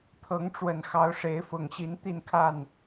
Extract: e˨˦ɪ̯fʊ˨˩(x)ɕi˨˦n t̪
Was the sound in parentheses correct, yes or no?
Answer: no